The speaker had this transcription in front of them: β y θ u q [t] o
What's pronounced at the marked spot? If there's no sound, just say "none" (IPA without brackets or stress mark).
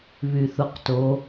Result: t